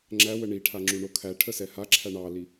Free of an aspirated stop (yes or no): no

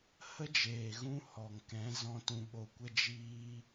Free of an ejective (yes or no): yes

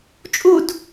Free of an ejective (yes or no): no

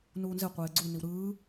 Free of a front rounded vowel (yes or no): yes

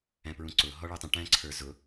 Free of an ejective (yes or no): yes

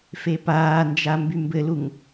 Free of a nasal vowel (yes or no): yes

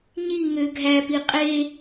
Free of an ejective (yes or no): no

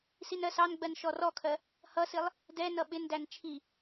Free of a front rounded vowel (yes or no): yes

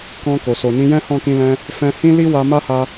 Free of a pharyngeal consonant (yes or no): yes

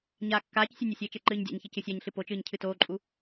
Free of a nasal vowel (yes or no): yes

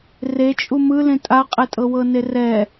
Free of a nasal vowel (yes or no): no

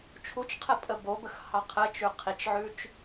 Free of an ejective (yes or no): no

